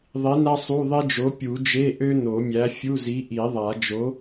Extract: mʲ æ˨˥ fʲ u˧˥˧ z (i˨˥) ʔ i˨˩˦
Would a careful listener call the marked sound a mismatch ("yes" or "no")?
no